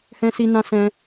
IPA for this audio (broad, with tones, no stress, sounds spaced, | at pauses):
h ɛ̃˦ s i˦ n ã˦ s ɛ̃˦